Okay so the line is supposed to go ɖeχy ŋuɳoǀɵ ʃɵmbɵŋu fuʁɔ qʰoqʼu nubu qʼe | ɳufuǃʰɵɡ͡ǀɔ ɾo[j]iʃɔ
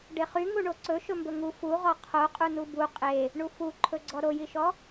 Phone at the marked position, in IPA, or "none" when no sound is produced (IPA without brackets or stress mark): j